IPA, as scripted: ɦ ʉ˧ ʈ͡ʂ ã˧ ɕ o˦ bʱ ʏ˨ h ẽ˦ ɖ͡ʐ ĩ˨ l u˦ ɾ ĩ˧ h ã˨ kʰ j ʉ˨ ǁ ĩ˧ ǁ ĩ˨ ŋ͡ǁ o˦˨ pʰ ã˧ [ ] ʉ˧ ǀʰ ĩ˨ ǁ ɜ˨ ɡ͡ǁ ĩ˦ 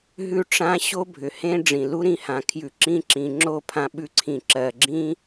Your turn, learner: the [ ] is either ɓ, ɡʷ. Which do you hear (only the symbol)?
ɓ